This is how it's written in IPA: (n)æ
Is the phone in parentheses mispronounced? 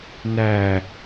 no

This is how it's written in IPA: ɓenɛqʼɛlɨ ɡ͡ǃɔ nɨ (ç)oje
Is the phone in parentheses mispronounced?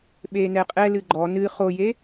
yes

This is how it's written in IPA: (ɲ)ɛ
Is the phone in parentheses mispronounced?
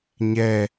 no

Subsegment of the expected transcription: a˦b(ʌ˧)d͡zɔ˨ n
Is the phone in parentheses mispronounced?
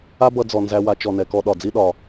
no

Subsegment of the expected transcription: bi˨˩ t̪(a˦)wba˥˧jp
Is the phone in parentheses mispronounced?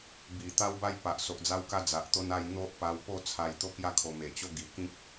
no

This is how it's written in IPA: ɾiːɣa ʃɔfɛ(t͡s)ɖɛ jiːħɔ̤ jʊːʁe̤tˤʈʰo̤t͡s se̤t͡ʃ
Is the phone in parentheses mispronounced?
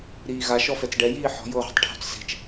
no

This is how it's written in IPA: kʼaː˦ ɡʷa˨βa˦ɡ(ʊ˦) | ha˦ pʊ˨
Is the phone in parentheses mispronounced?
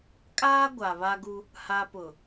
yes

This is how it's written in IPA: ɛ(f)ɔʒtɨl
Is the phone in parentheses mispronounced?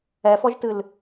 no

